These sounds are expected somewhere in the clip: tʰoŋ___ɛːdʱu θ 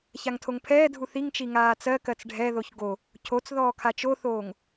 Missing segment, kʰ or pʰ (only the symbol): pʰ